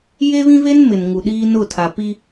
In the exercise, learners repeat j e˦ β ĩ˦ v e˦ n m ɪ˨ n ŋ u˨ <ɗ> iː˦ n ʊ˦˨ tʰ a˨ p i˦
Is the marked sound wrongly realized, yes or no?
no